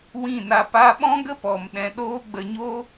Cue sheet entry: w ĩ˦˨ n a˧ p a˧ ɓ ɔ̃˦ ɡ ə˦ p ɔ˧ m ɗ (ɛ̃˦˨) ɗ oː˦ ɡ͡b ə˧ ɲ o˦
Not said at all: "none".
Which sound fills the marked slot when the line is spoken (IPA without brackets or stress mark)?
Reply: ɛ̃˧